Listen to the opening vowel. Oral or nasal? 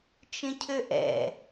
nasal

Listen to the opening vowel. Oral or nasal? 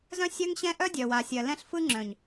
nasal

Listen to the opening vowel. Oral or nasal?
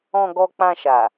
nasal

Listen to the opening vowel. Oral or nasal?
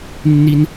oral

